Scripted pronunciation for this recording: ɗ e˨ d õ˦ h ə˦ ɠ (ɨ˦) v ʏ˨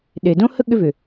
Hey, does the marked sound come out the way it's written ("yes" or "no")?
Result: no